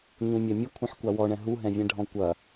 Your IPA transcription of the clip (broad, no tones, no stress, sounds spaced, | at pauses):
ɲ ũ mʲ ɛ mʲ ə kʷʰ ɛ̃ ħ kʷ a w ɔ ɳ ɛ̃ ɦ u ɦ ɛ̃ vʲ ɛ̃ ɖʱ ɔ̃ kʷ ɐ